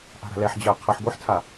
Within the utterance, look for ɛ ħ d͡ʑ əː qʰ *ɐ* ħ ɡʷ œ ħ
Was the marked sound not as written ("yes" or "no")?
yes